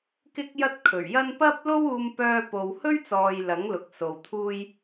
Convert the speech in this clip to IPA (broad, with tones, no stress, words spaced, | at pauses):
kɪ˥k̚jɐ˥t̚kʰɵ˨˩ɥjɐ˥n pɐ˥p̚lo˥wuː˧mpœː˧ po˨whɵ˥ɥt͡sɔː˨j lɐ˨˥ŋlʊ˨k̚so˨w t̪ʰuː˧j